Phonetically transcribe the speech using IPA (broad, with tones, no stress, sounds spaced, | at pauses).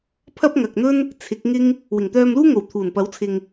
pʰ ɐ˥ p̚ ŋ ɐ˨ k̚ n̪ ɵ˥ n | t͡sʰ ɪ˨˥ k̚ ŋ ɪ˥ ŋ | w ɪ˨˩ ŋ t̪ œː˧ m l uː˥ ŋ o˨˩ w t̪ʰ uː˨˩ n p ɐ˨˥ w t͡sʰ ɪ˨ ŋ